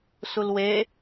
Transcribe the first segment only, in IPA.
s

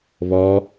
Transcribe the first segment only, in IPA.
β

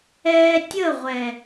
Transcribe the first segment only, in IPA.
ɛː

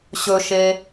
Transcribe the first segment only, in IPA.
ɕ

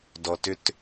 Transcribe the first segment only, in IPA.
d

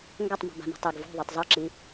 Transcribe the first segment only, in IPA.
ŋ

